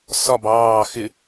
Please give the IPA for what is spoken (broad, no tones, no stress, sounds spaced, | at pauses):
s ɒ b ɑː x ɪ